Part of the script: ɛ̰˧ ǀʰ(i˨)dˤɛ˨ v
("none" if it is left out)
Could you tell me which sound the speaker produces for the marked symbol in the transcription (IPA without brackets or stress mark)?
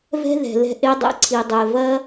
i˨